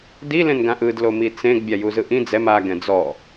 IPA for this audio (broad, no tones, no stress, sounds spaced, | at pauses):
d i l ẽ n ɡ ã ʔ ɯ d l o m i t͡s ẽ ɡ bʲ a j u z ɯ ʔ ĩ d͡z ɛ m a ɡ ɛ̃ d͡z ɔ